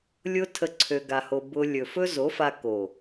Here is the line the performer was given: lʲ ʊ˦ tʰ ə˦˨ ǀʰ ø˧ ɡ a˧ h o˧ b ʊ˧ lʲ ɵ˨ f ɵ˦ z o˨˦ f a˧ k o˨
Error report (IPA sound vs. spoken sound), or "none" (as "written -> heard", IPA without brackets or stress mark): none